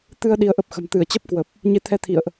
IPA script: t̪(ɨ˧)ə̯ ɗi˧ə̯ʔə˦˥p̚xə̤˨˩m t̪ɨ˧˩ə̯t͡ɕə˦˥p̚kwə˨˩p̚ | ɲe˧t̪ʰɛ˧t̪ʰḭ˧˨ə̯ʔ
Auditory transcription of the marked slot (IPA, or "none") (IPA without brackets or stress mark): ɨ˧